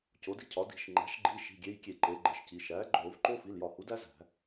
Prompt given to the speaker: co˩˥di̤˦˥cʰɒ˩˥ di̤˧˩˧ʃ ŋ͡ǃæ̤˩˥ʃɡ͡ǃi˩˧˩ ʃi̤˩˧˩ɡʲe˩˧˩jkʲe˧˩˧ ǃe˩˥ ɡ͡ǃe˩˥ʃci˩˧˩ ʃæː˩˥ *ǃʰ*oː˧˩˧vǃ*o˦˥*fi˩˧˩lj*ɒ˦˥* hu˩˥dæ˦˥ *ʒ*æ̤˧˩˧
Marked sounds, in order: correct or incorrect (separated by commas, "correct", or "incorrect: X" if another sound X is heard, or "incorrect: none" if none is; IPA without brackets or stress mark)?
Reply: incorrect: ɡ͡ǃ, correct, incorrect: ɒ˧˩˧, incorrect: z